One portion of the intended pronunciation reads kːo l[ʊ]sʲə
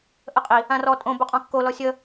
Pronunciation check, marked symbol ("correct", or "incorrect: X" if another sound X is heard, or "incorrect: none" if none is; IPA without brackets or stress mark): incorrect: ɔ